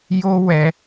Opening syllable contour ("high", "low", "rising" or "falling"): high